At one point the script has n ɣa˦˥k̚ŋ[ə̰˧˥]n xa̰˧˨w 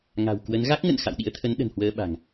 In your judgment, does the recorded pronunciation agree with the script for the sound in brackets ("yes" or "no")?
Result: no